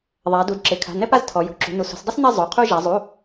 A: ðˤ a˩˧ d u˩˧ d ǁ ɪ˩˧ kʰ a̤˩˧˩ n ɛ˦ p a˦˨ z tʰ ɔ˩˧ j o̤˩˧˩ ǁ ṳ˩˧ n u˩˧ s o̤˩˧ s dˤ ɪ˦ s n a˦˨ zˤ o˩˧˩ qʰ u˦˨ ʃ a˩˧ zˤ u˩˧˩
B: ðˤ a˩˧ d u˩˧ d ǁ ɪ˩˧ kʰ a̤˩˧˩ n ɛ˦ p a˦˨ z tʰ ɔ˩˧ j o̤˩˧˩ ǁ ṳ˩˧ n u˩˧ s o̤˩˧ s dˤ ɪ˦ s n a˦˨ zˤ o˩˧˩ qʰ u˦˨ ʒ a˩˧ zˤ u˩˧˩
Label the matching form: B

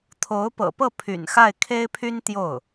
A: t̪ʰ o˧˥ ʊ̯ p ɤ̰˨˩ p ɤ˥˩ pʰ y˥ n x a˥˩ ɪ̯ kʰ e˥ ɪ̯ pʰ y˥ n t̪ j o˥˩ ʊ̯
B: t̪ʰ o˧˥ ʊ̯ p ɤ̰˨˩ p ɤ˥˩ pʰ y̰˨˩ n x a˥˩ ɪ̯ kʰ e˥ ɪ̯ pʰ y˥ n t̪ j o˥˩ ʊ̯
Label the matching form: B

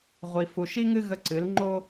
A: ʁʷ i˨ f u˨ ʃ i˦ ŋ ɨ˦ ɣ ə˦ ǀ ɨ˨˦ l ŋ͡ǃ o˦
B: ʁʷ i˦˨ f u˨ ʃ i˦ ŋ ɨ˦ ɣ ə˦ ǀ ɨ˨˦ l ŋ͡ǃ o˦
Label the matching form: A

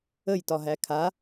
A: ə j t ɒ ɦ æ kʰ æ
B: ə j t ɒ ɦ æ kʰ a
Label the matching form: B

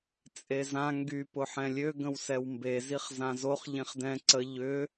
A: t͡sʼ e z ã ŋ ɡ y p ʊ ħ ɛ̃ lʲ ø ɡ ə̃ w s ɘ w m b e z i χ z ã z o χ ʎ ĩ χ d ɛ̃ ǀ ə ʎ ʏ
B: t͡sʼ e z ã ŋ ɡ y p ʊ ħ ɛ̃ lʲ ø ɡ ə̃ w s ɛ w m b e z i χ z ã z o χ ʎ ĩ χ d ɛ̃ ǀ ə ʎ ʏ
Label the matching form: B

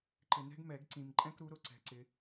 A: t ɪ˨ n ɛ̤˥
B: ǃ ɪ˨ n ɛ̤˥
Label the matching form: B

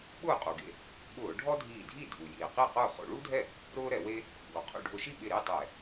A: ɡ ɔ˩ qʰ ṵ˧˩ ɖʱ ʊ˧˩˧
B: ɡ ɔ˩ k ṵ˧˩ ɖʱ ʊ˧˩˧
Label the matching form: A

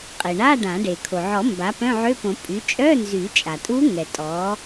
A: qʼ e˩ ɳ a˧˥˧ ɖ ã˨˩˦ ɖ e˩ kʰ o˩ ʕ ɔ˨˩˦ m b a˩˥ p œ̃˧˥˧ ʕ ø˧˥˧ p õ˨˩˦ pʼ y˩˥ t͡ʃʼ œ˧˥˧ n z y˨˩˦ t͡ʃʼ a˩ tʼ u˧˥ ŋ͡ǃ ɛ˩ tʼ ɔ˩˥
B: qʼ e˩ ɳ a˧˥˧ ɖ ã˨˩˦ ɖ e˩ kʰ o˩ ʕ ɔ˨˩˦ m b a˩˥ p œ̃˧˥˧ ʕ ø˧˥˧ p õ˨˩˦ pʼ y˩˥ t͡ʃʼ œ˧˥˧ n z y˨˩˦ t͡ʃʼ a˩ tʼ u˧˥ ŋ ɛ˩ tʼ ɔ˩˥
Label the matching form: B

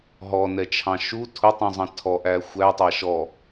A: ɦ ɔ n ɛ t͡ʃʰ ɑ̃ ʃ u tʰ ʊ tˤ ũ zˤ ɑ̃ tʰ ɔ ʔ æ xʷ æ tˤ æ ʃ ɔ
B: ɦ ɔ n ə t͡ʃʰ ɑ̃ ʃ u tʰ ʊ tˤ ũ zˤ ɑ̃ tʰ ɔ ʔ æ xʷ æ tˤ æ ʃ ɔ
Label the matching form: A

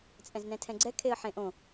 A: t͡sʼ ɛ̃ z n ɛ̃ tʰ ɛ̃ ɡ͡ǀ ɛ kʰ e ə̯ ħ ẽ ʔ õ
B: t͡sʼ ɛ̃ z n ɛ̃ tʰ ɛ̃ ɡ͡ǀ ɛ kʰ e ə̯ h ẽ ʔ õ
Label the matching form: A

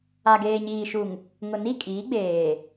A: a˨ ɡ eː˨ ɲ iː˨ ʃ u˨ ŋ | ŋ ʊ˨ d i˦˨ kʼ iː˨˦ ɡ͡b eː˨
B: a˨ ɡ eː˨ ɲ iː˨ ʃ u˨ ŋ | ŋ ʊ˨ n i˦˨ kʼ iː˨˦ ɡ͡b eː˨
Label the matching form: B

